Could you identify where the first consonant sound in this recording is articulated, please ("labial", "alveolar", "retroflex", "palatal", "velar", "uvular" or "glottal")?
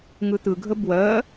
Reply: velar